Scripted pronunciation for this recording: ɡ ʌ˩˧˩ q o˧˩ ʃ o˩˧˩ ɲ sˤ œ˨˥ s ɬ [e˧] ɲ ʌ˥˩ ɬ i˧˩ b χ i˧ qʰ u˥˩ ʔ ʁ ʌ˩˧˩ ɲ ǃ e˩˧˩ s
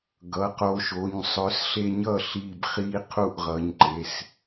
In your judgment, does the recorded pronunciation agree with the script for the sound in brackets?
yes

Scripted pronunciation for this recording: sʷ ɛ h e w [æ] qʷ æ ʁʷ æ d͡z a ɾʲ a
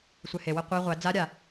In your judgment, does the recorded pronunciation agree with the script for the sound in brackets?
no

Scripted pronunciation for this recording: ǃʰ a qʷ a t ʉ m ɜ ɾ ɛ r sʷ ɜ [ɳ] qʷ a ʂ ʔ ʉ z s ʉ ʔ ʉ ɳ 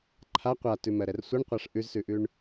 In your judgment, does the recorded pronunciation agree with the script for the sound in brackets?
yes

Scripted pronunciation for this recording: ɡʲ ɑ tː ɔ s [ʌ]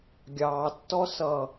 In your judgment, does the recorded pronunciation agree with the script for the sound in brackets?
yes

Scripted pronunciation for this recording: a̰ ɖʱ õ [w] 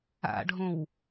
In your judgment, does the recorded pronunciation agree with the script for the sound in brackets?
yes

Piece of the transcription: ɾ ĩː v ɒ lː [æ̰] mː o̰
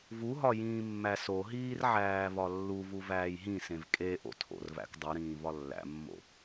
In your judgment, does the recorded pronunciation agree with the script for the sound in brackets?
yes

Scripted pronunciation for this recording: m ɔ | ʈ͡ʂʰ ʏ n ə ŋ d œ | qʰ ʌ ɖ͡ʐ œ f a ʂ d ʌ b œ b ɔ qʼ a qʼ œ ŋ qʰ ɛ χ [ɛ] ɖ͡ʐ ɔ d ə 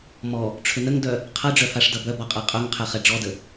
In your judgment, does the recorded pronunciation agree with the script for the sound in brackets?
yes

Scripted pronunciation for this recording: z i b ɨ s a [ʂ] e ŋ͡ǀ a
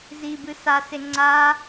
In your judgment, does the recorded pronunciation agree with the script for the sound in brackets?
no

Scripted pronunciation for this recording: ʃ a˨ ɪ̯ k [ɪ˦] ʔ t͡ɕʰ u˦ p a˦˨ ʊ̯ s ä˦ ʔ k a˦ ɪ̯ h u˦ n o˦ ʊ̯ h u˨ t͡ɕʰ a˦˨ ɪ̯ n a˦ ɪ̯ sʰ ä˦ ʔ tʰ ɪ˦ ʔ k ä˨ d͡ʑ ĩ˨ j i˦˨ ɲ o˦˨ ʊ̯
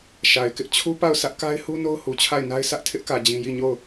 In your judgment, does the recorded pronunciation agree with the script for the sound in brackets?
yes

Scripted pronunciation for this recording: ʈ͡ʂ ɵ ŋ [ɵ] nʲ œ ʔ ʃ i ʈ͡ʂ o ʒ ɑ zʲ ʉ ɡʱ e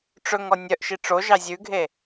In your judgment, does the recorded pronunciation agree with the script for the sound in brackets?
no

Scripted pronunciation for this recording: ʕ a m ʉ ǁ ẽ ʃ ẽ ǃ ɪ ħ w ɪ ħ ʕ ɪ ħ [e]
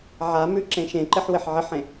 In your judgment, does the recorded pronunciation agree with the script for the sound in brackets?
no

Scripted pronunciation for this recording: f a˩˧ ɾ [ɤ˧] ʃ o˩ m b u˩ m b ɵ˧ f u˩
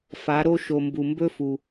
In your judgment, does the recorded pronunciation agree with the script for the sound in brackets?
no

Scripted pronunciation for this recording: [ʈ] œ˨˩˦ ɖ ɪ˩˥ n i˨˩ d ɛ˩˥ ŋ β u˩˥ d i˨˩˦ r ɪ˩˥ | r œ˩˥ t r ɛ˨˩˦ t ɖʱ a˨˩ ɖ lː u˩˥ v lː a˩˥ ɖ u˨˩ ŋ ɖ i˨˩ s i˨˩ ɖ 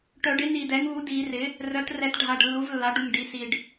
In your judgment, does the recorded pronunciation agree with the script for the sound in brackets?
yes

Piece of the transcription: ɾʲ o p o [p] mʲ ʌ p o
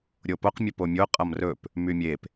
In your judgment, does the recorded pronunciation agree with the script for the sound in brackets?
no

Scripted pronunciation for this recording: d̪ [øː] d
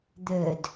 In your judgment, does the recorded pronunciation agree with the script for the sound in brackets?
no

